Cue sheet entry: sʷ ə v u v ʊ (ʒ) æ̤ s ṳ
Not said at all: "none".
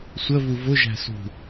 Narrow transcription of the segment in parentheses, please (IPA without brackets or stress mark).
ʒ